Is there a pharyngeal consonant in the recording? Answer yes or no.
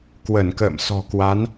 no